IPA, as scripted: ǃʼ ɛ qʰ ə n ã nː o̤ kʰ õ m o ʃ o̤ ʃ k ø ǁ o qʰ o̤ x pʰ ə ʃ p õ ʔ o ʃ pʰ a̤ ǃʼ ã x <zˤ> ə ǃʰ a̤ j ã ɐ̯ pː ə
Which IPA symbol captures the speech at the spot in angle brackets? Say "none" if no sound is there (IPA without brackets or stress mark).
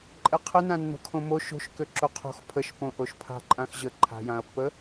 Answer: ʑ